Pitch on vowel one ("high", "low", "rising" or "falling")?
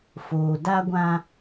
low